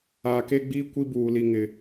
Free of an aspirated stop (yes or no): yes